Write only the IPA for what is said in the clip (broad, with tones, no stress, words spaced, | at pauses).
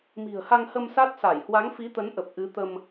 mi̤˨˩ə̯ha˧ŋhə˧m sa˦˥t̚sa˧˩j hwa˨˦ŋfi˨˦t̪ə˨˦nʔə˨˩p̚ ʔɨ˨˦t̪ə˧m